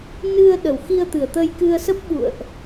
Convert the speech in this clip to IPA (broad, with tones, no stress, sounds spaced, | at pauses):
n ɨ˧ ə̯ ɗ ə˨˩ w x i˧ ə̯ t̪ ɨ˨˩ ə̯ t̪ ə˧ j k ɨ˧ ə̯ s ə˦˥ p̚ ɓ ṵ˧˨ ə̯ ʔ